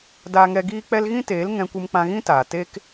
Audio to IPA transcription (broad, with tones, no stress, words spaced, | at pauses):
daː˧ŋɛ˧ ɡiː˦k͡pɛ˦l ɣĩ˦teː˨˦l ŋɛ̃˧kʷɨ˧m k͡pã˧ɣĩ˦taː˨ te˦k